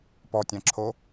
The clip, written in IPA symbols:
p ɔ tʲ ɑ̃ ǁʰ o

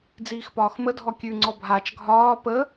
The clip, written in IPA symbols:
d͡z iː x p ɒː x m ə dʱ ɔ kʲ ʉ ŋ͡ǀ ɔ bʱ a t͡ʃ ɡʱ ɒː p ə

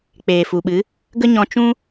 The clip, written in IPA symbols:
k͡p eː˨ f u˨ ɓ ɨ˨˦ | ɡ ə˦ ɲ ɔ̃˧ t͡ʃ ũ˦

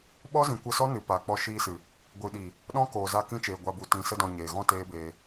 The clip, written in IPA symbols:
ɓ ɔ˦ z ĩ˨ kʷ ə˧ s ɔ˦ n ɨ˨ p a˨ k͡p ɔ˧ ʃ iː˧ s ɨ˨ | ɡʷ ɨ˨ ɗ i˨ | ɗ ɔ̃˦ k oː˨ z a˧ k ĩ˦ t͡ʃ eː˨ ɡʷ a˧ b u˨ t ĩ˨ s ə˧ d ɔ̃˨ ɲ eː˨ ɣ ɔ̃˦ t eː˦ b eː˧

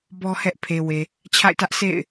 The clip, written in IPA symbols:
b ɔ˦ h ɛ˦ ʔ pʰ e˨ w e˨ | t͡ɕʰ a̰˦˨ ɪ̯ t ä˦ ʔ s ḛ˦˨ ɪ̯

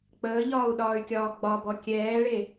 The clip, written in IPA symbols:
k͡p əː ʎ ɒː u̯ ɗ ɒː y̯ kʲ ɒː ɡ͡b ɒ b ɔ kʲ ɛː ɭ e

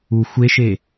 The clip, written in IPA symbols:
u xʷ e ʃ e

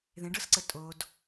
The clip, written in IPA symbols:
ð ẽ ɖ ɤ s ǀ ə tʼ o d

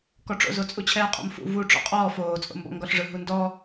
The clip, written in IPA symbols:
k ɔ ʈ͡ʂ o̰ z o t͡sʼ u t͡ɕʰ ɛː qʼ ɔ̰ m f ṵ v u ʈ͡ʂ ɔ̰ qʼ ɔː f oː t͡sʼ o̰ m b ɔ̰ ŋ ɡ ɔ ɬ ʐ ɯ ɦ u n d ɔ

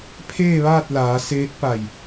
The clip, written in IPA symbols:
pʰ eː˥˨ ʋ aː˥˨ t̚ l aː˩˧ s eː˧˥ t̚ p a˧˩ j

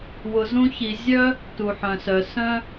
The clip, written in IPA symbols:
w ʊ˧ z ũ˥ ç i˧ zʲ œ˥ | t u˩ ħ œ̃˩ s œ˩ s œ̃˥

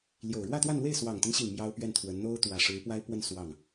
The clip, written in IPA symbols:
l j o˨˩ ʊ̯ ɻ w ä˥˧ t̪ w a˥˧ n l w e˥˩ ɪ̯ s w ɑ˨˩ ŋ t̪ i˦ ŋ ɕ i˨˩ ŋ m j ɑ˥ ʊ̯ p ɥ ɛ˥˩ n t̪ʰ w ə˧˥ n n̪ o˥ ʊ̯ t̪ w ä˨˩ ʂ ɻ̩˧˥ p w a˥ ɪ̯ p w ə˥˧ n s w ɑ˥˩ ŋ

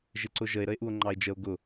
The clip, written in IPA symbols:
ʒ ɪ ǀ ʊ ʒ ə e̯ ɾ ə e̯ ʔ u o̯ ŋ͡ǃ ɑ e̯ d͡ʒ ə o̯ ɡ ʊ

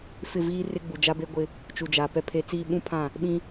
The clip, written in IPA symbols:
f ɪ˦˨ v iː˦ r ɪ˦ ɡ͡b u˨ d͡ʒ a˦ b e˦ ɡʷ ɪ˦ | t͡ʃ u˨ d͡ʒ a˨ p ɛ˨ pʰ e˨˦ t͡s iː˦ ɓ ũ˦ pʰ ã˦˨ | ɓ ĩ˦

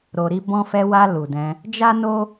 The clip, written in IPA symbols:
ɾ o˨ ɾ i˧ b ɔ̃˧ f ɛ˧ w a˧ l u˨ d ɛ̃˧ | d͡ʒ a˦ n o˦

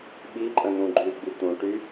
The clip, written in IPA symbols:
ɓ i ǃʼ ə̃ n ũ ɡ͡ǃ y l ɡ͡b i t̪ ũ ʈ y

